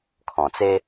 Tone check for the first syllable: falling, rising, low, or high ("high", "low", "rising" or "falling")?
low